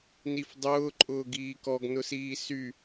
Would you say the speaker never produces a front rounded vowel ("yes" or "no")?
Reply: no